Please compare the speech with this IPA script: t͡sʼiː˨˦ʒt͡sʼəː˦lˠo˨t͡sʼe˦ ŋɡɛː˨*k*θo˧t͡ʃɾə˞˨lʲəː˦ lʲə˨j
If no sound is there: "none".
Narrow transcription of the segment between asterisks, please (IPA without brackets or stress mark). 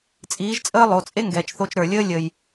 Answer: t͡ʃ